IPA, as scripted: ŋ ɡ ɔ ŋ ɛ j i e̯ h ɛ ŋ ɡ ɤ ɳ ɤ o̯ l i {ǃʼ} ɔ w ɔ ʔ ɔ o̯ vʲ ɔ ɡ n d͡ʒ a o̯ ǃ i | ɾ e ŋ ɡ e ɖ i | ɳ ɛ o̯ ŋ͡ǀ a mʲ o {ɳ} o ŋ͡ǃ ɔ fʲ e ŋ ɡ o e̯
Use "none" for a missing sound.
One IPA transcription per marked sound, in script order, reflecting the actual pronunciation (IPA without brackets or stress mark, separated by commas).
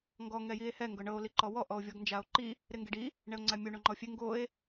ǃ, ɳ